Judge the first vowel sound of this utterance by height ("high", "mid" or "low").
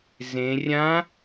mid